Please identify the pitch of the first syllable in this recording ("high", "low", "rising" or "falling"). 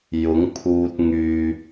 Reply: rising